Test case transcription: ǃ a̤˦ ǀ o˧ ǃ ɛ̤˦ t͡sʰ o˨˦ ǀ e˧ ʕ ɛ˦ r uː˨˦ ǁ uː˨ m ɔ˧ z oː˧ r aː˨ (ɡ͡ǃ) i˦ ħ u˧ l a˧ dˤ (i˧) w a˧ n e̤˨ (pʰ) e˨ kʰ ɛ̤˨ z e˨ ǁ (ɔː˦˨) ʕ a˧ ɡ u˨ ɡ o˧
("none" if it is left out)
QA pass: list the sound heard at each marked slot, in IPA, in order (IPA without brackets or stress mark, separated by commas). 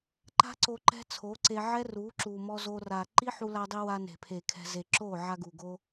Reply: ǃ, i˧, pʰ, oː˦˨